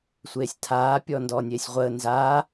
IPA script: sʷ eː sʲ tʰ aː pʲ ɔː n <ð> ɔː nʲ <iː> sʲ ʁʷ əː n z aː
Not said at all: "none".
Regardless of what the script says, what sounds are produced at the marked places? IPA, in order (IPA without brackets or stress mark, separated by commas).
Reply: d, eː